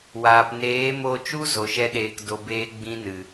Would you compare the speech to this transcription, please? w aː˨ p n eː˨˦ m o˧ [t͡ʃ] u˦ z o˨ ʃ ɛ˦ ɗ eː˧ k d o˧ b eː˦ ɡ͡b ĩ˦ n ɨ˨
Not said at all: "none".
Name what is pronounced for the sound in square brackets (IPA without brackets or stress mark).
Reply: t͡ʃ